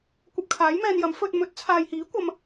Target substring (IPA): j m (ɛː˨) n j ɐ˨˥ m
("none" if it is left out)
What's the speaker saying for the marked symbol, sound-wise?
ɛː˧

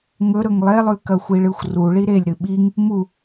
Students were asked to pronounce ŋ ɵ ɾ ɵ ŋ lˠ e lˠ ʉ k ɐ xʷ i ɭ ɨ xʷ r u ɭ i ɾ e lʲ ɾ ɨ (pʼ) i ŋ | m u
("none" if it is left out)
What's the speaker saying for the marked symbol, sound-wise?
ɓ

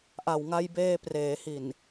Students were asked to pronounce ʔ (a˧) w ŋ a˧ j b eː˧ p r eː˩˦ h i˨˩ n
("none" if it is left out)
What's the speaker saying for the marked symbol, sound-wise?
a˨˩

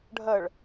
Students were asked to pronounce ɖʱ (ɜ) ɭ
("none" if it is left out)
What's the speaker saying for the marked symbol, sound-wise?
ɜ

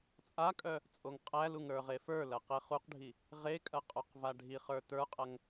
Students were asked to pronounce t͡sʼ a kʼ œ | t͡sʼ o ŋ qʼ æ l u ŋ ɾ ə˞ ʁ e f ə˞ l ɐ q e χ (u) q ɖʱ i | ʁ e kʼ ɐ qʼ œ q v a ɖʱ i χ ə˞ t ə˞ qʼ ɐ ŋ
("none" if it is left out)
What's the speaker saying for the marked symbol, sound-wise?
u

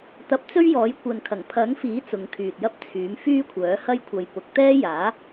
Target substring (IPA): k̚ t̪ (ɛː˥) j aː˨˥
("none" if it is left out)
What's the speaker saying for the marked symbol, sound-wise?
ɛː˥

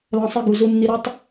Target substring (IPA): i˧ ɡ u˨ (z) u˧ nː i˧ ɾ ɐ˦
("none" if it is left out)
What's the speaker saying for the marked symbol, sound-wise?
z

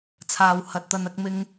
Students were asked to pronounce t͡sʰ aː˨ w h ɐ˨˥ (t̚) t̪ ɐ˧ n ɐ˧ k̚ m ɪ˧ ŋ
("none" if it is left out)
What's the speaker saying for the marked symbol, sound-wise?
t̚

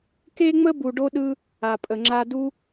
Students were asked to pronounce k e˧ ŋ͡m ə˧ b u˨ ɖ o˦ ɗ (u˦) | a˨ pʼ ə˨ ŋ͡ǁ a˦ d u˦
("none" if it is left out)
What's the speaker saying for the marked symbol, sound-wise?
ɯ˦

